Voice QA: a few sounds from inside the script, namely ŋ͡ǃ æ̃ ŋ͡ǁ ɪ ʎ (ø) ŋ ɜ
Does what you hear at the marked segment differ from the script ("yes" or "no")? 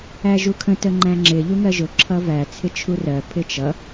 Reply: yes